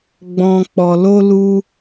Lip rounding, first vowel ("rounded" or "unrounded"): rounded